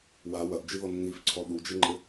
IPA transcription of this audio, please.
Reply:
w a w ɐ ʔ d͡ʒ ɨ ð ɔ nː i f ǀʰ ɔ ɗ u d͡ʒ ɘ ŋ͡ǃ ɘ

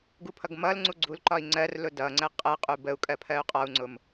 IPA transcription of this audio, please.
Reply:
ɡ u pʰ ʌ ɡ m ʌ l ŋ͡ǀ u ɡ͡ǀ u l ǃ ɒ i̯ ŋ͡ǀ ɜ r l ʊ d ʌ ŋ͡ǀ ə qʼ ɜ qʼ u b ə u̯ kʼ ɜ pʰ ɜ u̯ qʼ ɔ u̯ ŋ͡ǀ ʊ m

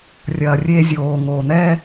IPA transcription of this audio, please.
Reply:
rʲ ɐː˨ rʲ eː˦ zʲ oː˨ ŋ oː˨ n̪ ɛː˦

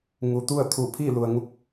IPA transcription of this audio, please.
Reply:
ŋ u˩ t̪ u˥˨ ə̯ t̪ʰ u˧˩ pʰ i˥˨ l u˩ ə̯ ŋ u˧˥ k̚

